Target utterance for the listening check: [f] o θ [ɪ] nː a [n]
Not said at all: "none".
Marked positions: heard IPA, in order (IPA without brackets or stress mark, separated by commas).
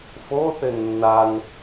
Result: f, ɪ, n